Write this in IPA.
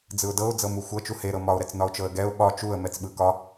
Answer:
d͡zɯʊ̯dɤʊ̯ d͡zɤmuxʷɤ t͡ʃuhe ɾɤmɒʊ̯ ɾɛt͡snɒʊ̯t͡ʃɤə̯ɡɛʊ̯ ɓɒ t͡ʃuə̯ mɛt͡sɓɯkɒ

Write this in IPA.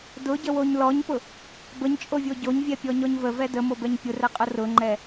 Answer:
dʊɟəwoɲ lɔɲpʊ | bəɲt͡ʃʼovʲo ɟoɲvʲɛpʲɔɲɔɲ vəvɛ dəmobɛɲ pʲʊrɛqʼʊ rʊŋ͡ǃɛ

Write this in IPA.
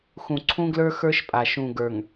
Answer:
xũ˨ ǀʰũ˦ɡlə˞˦ xə˞˦ʃpʼa˨ ʃũ˨ ɡə˞˨ŋ

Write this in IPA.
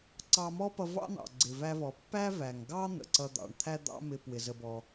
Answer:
ǀɑ˧mɔ˥pʌ˧ vɑ̰˥n̪ɑ̰˩ ɡ͡ǀɪ˩væ˧vɔ˩ pːæ˥væ˩ŋɡɑ˥ n̪ə̰˩ǀʌ˧d̪ɑ̰˩ɳ t̪ʰæ˥d̪ɑ̰˥mɪ˧ pwɪ˩ zə˧bɔ˧

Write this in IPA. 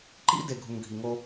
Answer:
ǃḭ˦ de˨ɡʱu˨ŋ ɡʱi˨ŋo˦

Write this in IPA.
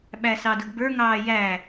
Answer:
ɓæsɑdʊɡbə˞ ŋɑːjæ

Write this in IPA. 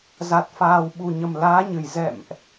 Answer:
za˨˩t̚faː˨˩wɓu˨˩ɲə˨˩m laː˨˦ɲɨ˨˩j zɛ̰˧˨mʔ

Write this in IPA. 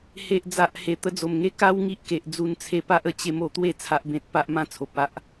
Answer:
he˨ʔd͡za˨ʔhe˨˩ t̪ə˧d͡zo˨˩mŋe˦ ka˦wŋi˦ʔke˨ʔ d͡zu˧nt͡sʰe˧pa˦ʔ ə˧t͡ɕe˦m o˧t̪we˥˧ t͡sʰa˦ʔbẽ˦t̚ pa˦ʔmã˦ t͡sʰo˨p̚a˦ʔ

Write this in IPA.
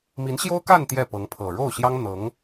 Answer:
mi˧˥nɕjo˥ʊ̯ ka˥˧n t̪jɛ˥˩pɤ˧˥ŋpʰɤ˨˩ ɻo˥˩ʊ̯ɕjɑ˥ŋ n̪ɤ˧˥ŋ

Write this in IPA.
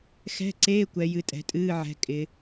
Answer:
xɛ̤˧˥˧ǀeː˧˥˧ kʷɛ˨˦jɨ˨˦tʼɛ̤˨˦ tʼɨː˧˥˧ʕɛ̤˨˦ kʼɪ˨˦

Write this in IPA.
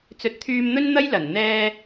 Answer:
t͡sɵ˨t̚t̪ʰyː˧mn̪ɵ˥nn̪ɐ˥j lɐ˨˩n n̪ɛː˧

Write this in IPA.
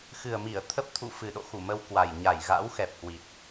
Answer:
xɨ˨˩ə̯mi˧˩ə̯ t̪ʰə˦˥p̚t̪ʰṵ˧˨ fɨ˨˩ɗo̰˧˨xu˧˩ mə˧w kwa˨˩j ɲa˧˩jɣa̰˧˥w xɛ˨˩p̚hwi˨˩t̚

